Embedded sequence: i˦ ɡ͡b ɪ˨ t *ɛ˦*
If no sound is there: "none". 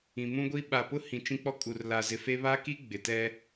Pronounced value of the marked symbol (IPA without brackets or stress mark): ɛ˦